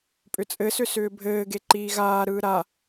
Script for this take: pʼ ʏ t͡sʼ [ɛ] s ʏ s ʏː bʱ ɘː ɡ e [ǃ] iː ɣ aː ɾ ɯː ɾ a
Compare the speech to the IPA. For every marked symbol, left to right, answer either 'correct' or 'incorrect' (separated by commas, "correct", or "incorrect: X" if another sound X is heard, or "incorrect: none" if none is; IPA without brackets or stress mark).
incorrect: ɘ, correct